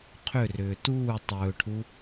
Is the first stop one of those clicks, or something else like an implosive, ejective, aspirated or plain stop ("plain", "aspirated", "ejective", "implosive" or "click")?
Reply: aspirated